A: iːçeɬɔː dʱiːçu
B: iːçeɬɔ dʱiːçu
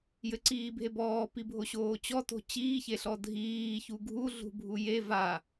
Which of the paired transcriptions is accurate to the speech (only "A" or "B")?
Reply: B